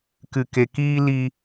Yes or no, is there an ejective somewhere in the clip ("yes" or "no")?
no